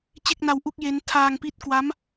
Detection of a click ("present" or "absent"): absent